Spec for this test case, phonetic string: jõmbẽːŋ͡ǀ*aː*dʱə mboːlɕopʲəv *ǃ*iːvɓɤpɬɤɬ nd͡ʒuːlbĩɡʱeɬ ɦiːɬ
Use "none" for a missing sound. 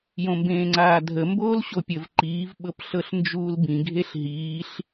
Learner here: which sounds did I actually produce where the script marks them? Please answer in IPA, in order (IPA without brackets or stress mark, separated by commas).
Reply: aː, ǃ